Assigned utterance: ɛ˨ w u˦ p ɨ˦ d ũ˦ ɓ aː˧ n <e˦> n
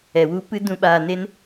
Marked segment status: correct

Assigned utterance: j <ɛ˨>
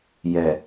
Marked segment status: correct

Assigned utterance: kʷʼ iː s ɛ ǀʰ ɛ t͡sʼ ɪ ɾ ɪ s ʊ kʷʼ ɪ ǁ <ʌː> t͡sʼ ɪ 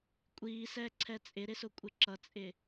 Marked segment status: incorrect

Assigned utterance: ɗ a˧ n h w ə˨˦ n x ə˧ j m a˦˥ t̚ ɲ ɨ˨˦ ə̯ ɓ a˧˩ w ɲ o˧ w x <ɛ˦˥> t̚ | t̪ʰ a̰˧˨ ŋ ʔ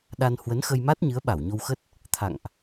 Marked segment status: incorrect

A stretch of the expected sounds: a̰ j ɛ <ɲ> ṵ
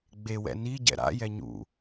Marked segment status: correct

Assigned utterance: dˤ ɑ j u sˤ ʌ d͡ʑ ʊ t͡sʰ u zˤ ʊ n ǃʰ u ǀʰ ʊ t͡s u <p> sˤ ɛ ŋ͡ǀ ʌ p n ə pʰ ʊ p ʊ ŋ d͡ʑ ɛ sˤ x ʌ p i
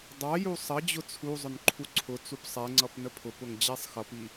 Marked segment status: correct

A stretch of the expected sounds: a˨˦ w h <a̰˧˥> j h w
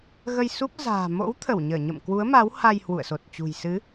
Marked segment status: incorrect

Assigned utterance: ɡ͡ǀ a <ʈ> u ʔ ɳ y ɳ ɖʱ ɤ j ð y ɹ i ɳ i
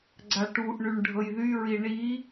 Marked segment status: correct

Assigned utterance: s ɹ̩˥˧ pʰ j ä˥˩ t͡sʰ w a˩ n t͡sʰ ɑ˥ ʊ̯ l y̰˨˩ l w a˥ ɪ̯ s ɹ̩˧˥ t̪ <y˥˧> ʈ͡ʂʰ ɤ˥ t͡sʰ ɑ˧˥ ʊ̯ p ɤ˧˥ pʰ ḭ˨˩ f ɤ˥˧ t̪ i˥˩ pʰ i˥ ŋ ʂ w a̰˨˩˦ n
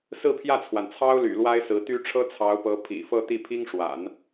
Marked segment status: incorrect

